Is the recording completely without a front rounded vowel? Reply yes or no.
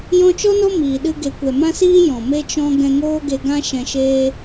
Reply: yes